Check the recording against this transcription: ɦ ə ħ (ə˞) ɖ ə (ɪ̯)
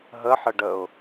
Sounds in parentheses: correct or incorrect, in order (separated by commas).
incorrect, incorrect